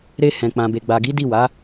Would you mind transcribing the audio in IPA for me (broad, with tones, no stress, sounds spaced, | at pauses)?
ɾ e˧ h ɛ̃˨ k͡p ã˨ b e˨ ɡ͡b a˨ ɡ i˨˦ d i˦˨ w a˨˦